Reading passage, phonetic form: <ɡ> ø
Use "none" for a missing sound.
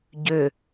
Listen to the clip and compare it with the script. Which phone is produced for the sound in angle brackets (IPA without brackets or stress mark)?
ɟ